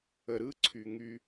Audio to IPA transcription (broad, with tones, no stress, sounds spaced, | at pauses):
ə˨ ɾ ɯ˦ ǀʰ y˨ ŋ y˧